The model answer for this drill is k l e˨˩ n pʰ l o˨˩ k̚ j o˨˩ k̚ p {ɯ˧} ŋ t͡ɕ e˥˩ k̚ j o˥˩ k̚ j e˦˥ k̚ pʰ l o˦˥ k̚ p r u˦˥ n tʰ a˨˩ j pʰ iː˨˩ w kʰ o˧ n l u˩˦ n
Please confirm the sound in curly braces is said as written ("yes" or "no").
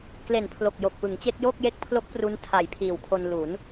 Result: no